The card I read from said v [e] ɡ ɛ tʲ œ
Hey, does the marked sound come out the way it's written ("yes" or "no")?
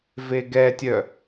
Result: yes